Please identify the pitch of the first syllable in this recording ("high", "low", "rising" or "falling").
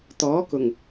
rising